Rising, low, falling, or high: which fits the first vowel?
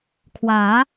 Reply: rising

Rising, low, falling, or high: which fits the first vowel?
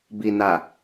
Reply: low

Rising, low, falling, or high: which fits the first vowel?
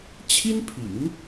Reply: high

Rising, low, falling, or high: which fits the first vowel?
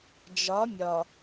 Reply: rising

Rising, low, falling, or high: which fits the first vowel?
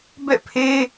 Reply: falling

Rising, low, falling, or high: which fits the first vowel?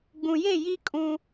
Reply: low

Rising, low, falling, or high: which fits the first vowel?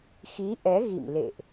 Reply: rising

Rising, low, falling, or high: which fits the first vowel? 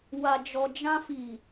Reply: low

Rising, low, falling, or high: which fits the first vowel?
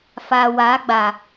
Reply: low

